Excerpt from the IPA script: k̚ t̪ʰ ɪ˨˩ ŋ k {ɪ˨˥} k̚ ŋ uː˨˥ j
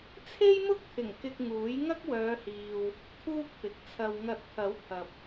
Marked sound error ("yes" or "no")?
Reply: yes